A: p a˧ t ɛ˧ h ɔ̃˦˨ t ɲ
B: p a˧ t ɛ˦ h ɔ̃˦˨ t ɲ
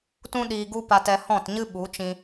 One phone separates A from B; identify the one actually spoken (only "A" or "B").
A